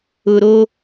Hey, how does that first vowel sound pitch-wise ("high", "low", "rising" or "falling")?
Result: low